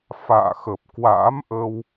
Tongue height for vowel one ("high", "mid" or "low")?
low